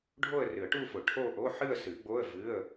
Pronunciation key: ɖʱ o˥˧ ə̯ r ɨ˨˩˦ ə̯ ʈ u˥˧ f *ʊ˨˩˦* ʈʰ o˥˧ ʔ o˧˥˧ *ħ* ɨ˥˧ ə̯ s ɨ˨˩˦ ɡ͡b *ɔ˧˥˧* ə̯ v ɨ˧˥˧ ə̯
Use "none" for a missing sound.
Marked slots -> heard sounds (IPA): ʊ˨˩˦, ħ, o˧˥˧

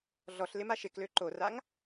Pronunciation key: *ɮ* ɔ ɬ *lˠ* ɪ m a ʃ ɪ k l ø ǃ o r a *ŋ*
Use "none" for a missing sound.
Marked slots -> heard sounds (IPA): ɮ, l, ŋ

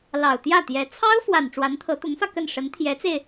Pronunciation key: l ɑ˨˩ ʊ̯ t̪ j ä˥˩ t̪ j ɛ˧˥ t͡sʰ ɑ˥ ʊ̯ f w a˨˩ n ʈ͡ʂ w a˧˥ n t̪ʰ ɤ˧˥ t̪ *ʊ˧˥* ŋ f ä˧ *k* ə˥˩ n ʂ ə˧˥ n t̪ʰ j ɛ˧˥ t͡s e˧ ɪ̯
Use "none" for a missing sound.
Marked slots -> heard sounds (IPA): ʊ˧˥, k

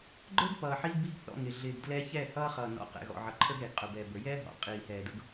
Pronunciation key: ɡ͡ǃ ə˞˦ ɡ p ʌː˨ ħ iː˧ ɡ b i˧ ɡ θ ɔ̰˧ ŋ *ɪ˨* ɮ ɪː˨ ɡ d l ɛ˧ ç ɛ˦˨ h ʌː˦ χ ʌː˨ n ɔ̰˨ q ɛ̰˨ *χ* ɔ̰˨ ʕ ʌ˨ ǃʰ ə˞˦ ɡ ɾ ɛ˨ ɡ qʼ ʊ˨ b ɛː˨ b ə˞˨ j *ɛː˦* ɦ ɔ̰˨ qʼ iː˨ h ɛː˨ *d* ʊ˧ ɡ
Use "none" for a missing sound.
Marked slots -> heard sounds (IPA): ɪ˨, ɣ, ɛː˦, d

